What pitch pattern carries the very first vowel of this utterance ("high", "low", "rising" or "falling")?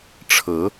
rising